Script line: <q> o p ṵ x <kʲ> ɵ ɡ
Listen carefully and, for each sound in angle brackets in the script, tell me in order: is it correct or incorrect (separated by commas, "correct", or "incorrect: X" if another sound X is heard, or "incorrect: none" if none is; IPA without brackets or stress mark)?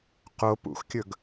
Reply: correct, correct